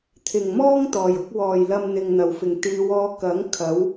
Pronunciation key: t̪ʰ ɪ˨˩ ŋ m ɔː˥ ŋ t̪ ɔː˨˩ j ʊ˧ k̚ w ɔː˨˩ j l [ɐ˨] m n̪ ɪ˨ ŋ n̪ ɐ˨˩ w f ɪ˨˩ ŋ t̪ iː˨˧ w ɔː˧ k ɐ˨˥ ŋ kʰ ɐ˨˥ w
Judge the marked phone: correct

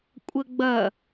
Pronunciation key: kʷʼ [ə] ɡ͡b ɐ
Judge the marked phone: correct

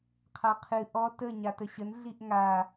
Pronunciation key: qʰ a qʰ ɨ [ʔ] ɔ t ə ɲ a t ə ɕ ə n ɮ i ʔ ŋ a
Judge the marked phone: correct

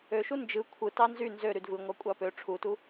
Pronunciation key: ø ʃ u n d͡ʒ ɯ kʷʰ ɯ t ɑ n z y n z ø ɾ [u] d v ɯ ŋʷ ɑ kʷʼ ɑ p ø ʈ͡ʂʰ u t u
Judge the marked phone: incorrect: y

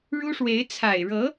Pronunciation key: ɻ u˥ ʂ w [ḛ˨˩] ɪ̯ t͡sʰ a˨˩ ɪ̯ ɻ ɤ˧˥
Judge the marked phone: incorrect: e˧˥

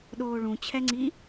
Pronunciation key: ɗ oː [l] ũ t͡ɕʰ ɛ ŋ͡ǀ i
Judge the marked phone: incorrect: ɭ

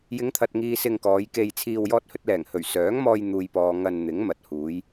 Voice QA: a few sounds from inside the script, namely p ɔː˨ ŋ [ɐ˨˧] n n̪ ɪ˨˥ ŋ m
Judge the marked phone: incorrect: ɐ˧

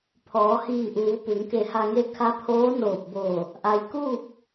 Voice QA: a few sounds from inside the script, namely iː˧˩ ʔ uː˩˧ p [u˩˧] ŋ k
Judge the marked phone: correct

